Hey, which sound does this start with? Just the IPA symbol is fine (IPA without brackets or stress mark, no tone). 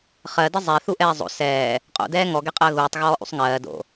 χ